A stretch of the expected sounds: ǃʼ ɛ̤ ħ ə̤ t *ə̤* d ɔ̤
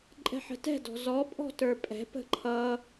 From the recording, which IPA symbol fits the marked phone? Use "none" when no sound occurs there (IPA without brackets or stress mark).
ɛ̤